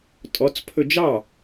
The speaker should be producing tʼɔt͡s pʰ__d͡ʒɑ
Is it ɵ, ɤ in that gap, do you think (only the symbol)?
ɵ